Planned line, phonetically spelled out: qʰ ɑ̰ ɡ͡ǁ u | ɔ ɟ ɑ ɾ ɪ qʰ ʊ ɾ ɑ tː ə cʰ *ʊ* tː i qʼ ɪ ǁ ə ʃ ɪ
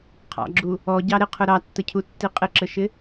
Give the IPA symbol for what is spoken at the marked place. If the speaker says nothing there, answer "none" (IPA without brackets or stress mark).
u